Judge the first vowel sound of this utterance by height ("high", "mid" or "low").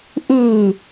high